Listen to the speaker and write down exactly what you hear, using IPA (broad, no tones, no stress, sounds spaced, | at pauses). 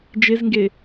d͡ʒ e z ŋ ɡ e